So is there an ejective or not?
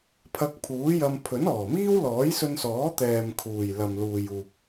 no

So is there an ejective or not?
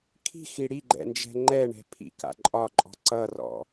yes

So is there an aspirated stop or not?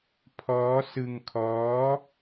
yes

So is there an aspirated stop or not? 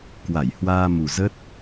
no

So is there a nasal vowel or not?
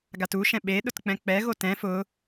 yes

